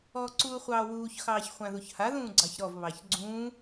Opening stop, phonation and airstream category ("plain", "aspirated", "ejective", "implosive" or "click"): click